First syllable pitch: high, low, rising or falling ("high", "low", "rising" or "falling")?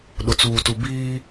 low